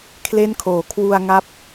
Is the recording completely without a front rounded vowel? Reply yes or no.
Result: yes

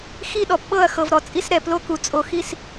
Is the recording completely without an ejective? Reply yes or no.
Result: no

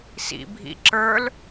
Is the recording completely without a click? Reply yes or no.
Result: no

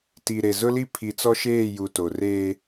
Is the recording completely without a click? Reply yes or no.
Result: yes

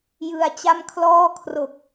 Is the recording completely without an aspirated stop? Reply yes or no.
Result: no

